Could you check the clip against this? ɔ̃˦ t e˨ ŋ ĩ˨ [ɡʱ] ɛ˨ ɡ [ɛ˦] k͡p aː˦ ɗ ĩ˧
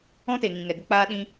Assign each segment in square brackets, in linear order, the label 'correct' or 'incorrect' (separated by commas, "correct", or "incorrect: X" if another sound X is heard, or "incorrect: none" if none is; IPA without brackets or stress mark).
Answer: incorrect: ŋ, incorrect: ə˦